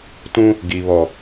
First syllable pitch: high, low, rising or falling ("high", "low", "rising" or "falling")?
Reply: high